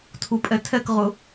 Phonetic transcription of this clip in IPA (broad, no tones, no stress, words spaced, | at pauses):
tʰupʼɛtʰɛkʁʊ